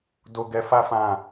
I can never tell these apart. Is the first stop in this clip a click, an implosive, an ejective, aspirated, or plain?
plain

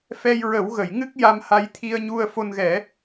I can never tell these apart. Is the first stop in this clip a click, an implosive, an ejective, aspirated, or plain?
plain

